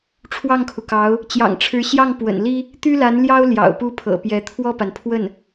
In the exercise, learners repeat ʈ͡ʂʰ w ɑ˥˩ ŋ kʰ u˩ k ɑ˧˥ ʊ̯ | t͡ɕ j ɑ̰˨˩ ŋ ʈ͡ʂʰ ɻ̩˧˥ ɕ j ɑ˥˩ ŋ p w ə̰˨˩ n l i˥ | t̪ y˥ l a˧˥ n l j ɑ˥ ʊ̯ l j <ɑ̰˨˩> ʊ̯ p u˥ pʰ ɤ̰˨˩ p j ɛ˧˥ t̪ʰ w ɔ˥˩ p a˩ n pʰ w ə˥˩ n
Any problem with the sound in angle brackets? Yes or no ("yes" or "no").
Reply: no